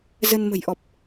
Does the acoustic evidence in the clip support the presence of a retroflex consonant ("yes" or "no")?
no